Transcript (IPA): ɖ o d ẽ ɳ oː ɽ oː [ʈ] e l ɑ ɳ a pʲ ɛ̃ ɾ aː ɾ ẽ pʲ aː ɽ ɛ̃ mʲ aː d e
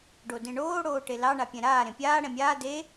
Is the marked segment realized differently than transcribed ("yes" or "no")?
no